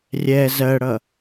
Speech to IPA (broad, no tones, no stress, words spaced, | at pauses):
rʲɛ zɜɽʌ